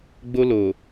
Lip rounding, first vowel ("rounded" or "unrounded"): rounded